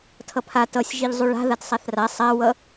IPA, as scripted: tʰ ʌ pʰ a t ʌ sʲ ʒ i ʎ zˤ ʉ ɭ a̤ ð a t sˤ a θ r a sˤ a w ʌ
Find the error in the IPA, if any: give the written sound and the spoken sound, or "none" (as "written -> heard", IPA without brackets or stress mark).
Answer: none